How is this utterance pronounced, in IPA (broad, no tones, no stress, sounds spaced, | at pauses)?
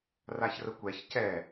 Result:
r a ç r ə kʷ ɛ ç c ɛ